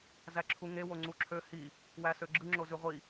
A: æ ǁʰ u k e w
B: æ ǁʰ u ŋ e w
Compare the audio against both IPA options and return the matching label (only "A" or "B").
B